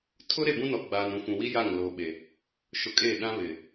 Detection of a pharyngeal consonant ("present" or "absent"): absent